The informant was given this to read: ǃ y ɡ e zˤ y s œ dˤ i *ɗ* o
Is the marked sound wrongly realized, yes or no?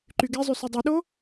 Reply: no